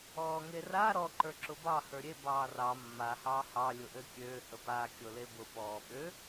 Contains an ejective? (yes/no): no